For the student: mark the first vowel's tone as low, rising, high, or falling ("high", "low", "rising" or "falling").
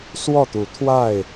falling